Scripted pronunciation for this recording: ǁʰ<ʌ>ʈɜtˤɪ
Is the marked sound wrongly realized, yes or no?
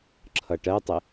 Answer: no